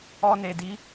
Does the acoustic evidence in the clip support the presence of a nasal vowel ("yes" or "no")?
no